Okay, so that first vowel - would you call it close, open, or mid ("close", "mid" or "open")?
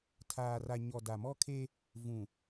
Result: open